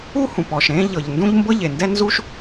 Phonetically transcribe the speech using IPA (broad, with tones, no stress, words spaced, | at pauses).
u˥hũ˩pɔ˩ʃ ɾẽ˥ʎɤ˩ʎndũ˥ʎ mbɤ˥ ʎe˩ndɛ˥nzu˥ʃ